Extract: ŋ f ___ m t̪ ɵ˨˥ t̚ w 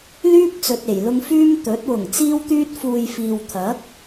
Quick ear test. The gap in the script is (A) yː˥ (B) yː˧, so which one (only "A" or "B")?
B